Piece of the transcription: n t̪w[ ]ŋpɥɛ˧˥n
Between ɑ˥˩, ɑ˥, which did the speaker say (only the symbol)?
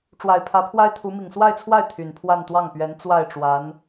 ɑ˥˩